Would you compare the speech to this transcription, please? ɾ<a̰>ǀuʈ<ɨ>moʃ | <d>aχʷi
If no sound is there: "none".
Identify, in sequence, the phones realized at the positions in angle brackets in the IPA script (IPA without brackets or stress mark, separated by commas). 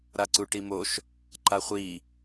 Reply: a, i, ǃ